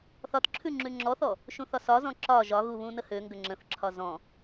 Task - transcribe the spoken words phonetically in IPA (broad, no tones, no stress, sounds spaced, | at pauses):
θ ɒ t ǁʰ ʉ ŋ͡ǁ ʉ ŋ͡ǁ ɔ θ ɔ | ʃ ũ θ ɒ s ɒ z ɔ̃ ǁ ɒ ʒ ɒ ɣ u β ũ n ə h ø ŋ ɡ ə ŋ͡ǁ ə̃ θ ǁʰ ɒ z ɔ̃